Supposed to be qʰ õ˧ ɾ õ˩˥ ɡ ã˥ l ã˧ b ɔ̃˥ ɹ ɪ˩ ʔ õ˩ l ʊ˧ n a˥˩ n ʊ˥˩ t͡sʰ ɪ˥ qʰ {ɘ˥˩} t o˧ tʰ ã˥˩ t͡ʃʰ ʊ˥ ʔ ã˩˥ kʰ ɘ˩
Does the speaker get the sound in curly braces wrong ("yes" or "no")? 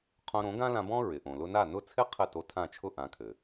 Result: no